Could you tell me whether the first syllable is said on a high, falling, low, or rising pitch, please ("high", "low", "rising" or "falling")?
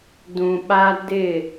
low